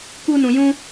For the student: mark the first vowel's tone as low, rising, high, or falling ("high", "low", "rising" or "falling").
high